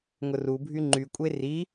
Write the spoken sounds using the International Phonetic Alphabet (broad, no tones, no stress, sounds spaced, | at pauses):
ŋ ʊ r u bʱ y ŋ͡ǃ y kʷʼ e r i